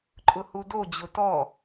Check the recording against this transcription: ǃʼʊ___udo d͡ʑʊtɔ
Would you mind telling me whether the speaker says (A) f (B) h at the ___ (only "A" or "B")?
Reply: B